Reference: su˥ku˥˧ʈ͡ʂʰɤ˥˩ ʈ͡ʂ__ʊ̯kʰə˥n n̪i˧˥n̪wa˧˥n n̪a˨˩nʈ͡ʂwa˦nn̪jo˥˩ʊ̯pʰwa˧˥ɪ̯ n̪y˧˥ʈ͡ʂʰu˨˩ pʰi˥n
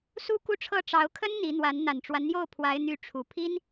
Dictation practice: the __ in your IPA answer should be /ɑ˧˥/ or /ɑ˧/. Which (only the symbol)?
ɑ˧˥